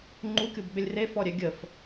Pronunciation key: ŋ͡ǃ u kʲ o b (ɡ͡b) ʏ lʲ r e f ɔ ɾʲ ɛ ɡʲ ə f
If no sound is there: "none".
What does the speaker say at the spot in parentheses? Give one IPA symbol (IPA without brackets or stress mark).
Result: ɡ͡b